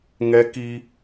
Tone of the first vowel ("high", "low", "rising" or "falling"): high